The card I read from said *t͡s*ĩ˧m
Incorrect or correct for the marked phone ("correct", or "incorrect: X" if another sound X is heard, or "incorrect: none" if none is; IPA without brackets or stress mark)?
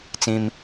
correct